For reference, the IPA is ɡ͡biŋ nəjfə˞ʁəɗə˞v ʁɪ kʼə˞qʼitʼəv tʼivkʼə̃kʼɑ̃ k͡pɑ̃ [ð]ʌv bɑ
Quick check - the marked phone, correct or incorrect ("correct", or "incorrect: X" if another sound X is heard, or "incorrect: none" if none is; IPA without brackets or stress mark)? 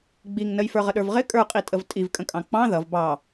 correct